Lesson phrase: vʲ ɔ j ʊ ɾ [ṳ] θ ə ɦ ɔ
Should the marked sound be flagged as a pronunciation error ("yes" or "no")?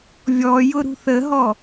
no